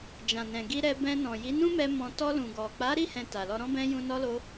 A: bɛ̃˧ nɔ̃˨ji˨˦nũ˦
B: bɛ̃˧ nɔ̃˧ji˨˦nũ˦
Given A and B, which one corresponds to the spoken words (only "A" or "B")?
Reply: A